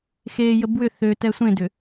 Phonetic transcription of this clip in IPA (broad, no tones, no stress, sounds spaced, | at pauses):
x e j ə b w ʏ θ ø t ɛ sʷ ẽ d ʏ